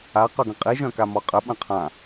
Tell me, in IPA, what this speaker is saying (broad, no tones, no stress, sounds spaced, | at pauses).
a q œ ɡ ə̃ qʼ i ʒ œ̃ k a m ɔ qʼ ə ɓ ə̃ qʰ ã